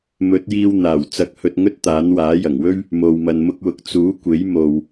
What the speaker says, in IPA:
mɵ˨˥t̚jiː˧w n̪aː˨˩wt͡sɐ˧k̚hɵ˧t̚ ŋɵ˥t̚t̪aː˨˥n waː˨˥jɐ˨˩ŋwɵ˥ɥ | mo˨w mɐ˨nmʊ˧k̚wʊ˨k̚ t͡suː˨˥kʷe˨˥jmo˨w

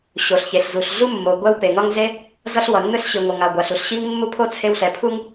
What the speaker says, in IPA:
ɕo˩ɬçe˩ɬzu˩ɬ ɮu˥mːo˩ ɡʷɛ˥wpe˩ŋʌ˥ŋ ze˥ | zʌ˥ɬ wʌ˩nːɯ˥ɬɕi˩ ŋʷʌ˩ŋa˩ ɡʷa˩ɬu˩ɬɕi˥ŋ mːu˥pʰo˥ t͡sʰe˥wɬɛ˩ pʰu˥ŋ

